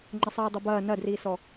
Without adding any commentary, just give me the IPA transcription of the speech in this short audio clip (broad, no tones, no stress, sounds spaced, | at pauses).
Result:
ŋ͡ǃ ə sˤ iː dˤ ɛ b ɐː n ɐ d r iː s ɔ